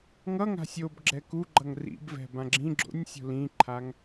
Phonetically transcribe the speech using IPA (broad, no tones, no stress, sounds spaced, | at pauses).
ŋ ʌ ŋ a̤ sʲ o b ɡ͡ǁ ɛ k u ɡ͡ǃ ʌ ŋ r ḭ b v ɛ̤ b ã ɡ͡ǁ ĩ ɡ͡ǁ o̰ nʲ sʲ o̤ l ĩ ǃʰ a ŋ